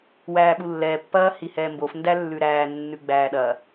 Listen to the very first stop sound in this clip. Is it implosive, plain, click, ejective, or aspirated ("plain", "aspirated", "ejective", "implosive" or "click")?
implosive